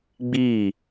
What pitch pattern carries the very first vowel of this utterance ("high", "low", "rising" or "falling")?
falling